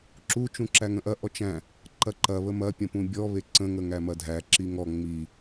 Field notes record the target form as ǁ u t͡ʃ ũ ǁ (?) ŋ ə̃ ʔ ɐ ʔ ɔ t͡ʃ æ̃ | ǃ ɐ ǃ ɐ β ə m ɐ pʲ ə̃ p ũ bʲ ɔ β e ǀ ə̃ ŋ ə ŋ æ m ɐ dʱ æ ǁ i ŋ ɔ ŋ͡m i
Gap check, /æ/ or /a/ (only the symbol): æ